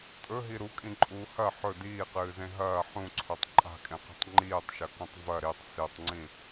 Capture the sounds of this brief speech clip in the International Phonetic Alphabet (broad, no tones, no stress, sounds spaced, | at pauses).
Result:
tʼ ɵ ɦ i ɾ u kʼ ĩ ǃʼ uː h ɐ ħ ɵ d iː q ɨː z ẽ ɦ ɐː ħ ũ ǀʰ ɵ tˤ ǃʼ a̤ kʼ ẽ q i̤ tˤ ŋ͡ǃ iː tˤ ʃ ɐ k ũ tˤ v ɐ ɾ i tˤ s i tˤ ŋ͡ǀ ĩ